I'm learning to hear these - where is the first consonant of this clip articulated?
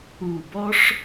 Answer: lips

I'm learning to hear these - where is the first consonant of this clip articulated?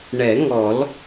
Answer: retroflex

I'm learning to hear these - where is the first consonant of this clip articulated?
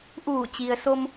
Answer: throat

